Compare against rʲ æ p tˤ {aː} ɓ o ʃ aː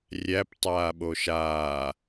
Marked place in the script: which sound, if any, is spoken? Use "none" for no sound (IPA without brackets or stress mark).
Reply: aː